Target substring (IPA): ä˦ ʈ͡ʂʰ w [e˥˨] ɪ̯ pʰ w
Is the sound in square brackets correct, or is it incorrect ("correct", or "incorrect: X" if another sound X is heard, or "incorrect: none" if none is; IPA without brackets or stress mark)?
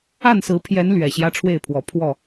correct